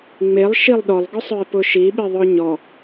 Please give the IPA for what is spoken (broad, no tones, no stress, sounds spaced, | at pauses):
ŋ͡m e lˠ ʃ i lˠ ɗ ɔ lˠ ɡ ʊ sˤ œ e̯ p ʊ ʃ i ɓ i ðˤ œ ɲ ɔ